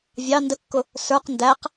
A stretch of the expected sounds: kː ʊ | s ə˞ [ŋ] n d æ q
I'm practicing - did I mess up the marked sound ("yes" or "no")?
yes